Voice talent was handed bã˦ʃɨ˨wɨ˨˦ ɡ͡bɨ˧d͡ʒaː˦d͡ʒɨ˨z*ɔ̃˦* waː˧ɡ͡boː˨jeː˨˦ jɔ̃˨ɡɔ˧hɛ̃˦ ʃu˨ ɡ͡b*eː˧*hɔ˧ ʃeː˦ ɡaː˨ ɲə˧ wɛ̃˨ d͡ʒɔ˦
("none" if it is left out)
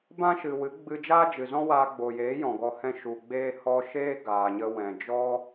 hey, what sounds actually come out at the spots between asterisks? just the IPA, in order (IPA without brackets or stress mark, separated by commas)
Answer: ɔ̃˦, eː˧